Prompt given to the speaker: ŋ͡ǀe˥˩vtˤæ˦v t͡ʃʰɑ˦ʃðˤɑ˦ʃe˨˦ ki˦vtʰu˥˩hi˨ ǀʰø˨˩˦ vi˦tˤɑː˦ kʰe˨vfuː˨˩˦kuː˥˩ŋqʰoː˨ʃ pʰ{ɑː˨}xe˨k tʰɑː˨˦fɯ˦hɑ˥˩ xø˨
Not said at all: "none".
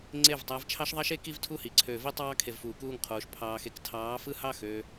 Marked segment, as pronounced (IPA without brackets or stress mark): ɑː˨